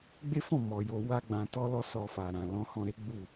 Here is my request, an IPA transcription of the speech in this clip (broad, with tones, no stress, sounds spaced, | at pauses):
ɡ͡b e˦ f ɔ̃˦˨ m ɔ˨ j o˧ w a˦ ɡ͡b ã˧ t ɔ˦ l ɔ˦ s ɔ˧ f a˨ ɾ ã˨ l ɔ̃˧ h ɔ̃˧ ɾ e˦ ɡ͡b u˦˨